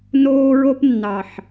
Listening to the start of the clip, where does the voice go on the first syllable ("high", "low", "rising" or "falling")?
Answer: high